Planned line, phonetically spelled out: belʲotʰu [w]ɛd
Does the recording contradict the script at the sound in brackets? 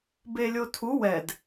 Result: no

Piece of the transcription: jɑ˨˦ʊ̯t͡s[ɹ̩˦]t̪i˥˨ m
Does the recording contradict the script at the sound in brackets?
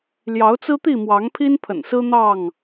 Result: no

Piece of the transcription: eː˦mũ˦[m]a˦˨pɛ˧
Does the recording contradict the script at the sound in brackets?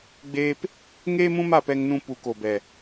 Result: no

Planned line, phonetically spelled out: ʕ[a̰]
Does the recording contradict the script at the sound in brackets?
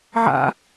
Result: no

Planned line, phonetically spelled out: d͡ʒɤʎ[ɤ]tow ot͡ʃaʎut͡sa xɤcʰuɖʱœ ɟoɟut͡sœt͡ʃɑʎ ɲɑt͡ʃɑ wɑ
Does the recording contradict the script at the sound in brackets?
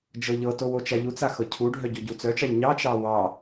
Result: no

